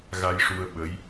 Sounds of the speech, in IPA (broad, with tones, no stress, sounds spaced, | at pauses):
ɣ a˧ j ʂ u˧ ə̯ ɓ ə˧˥ j